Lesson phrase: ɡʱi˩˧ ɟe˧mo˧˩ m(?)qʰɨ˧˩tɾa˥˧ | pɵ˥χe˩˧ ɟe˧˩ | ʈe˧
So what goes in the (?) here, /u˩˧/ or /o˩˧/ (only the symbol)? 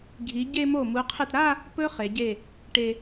u˩˧